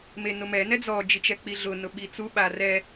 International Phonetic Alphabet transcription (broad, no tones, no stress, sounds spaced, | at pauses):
m e n ʊ m ɛ n ɛ d͡z ɔ d͡ʒ i t͡ʃ ɛ k͡p i ɮ ʊ n ʊ ɓ i t͡s u ɓ a r ɛ